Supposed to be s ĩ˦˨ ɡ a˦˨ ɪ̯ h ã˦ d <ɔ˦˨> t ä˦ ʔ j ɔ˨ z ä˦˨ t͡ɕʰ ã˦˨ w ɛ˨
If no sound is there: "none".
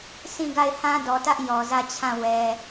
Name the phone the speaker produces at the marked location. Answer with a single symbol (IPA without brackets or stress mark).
ɔ˨